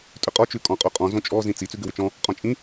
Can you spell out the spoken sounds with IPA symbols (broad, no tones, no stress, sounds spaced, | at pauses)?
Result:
tʼ ʏ qʼ ɔ t͡ʃ ʉ kʼ ɔ̃ qʼ o qʼ ɔ̃ z õ t͡ʃʼ ɔ z ĩ t͡s i t͡s ʉ ɡ ʏ w ʏ t͡ʃ ɔ̃ | qʼ ɔ̃ t͡ʃʼ ĩ